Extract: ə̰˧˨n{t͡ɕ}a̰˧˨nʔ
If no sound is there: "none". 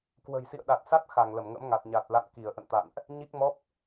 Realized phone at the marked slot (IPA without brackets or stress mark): t̪